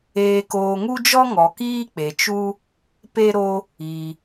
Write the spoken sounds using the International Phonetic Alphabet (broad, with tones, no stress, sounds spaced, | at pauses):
eː˧ k oː˧ ŋ u˦ d͡ʒ ɔ˦ ŋ ɔ˨ k iː˦ k͡p e˨ t͡ʃ u˦ | p e˦ ɾ o˦ | i˧